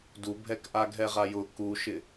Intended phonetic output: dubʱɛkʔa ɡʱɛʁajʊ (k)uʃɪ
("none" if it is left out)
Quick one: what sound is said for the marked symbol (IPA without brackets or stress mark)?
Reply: k